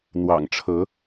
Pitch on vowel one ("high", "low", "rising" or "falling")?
low